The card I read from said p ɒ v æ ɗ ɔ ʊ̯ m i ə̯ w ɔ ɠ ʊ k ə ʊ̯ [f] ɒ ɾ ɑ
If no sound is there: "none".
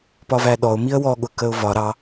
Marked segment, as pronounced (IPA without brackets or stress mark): v